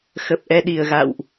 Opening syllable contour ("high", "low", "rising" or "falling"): low